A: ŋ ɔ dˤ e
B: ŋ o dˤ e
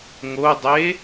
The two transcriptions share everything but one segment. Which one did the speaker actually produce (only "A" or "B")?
B